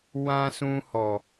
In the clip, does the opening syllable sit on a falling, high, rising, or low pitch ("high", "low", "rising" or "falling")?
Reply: high